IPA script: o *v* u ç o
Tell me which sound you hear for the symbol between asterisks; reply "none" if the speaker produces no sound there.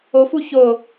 f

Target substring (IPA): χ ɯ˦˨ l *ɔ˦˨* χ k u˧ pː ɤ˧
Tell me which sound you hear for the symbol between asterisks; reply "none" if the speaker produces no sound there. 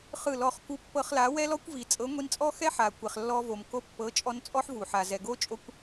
ɔ˦˨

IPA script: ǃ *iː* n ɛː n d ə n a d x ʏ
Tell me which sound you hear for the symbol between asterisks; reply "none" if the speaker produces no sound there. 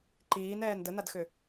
iː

